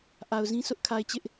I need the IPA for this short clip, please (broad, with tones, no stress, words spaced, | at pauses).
ʔa˨ʊ̯zĩ˦ sʊ˦ʔkʰa˨ɪ̯ t͡ɕɪ˦ʔ